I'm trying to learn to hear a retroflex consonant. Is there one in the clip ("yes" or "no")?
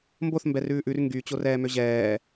no